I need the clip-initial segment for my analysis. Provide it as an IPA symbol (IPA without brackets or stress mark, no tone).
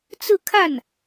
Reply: t͡s